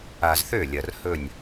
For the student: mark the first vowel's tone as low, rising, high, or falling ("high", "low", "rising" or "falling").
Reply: low